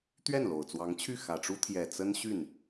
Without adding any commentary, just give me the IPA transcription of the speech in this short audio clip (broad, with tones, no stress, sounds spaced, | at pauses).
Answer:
t̪ ɥ ɛ˥˩ n l o˨˩ ʊ̯ t͡s w ɑ˧˥ ŋ t͡ɕʰ y˥˩ x ä˨˩ ʈ͡ʂ u˥ t̪ʰ j ɛ˨˩ t͡s ə˥ n ɕ y˥˩ n